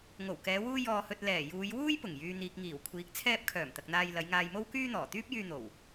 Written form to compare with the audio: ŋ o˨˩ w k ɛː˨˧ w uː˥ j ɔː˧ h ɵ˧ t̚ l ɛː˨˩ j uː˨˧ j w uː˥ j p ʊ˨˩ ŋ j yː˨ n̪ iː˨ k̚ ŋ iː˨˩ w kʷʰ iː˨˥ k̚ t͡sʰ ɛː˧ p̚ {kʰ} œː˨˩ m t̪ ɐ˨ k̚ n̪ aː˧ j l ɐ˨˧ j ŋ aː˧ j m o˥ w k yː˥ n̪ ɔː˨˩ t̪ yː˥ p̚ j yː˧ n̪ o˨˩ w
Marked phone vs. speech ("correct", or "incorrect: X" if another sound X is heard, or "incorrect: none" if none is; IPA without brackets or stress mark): correct